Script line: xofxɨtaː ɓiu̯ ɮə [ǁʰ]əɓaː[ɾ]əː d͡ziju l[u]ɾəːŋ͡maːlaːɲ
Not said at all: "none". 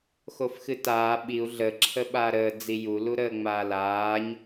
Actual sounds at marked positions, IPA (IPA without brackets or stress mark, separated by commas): ǁʰ, ɾ, u